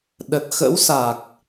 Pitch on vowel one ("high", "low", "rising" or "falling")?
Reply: low